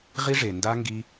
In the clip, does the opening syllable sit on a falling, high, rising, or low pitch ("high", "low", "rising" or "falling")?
high